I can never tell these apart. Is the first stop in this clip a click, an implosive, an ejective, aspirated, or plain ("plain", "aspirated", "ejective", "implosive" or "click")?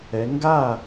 plain